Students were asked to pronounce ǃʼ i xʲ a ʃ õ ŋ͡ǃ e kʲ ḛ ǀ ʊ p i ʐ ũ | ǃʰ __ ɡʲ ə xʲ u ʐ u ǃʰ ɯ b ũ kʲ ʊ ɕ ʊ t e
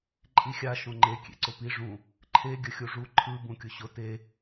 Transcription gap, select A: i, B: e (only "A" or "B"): B